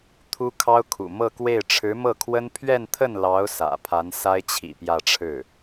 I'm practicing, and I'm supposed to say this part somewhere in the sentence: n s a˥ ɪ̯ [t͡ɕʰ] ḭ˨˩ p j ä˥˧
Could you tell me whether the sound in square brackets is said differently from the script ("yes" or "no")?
no